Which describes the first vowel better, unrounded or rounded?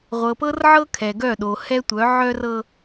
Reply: unrounded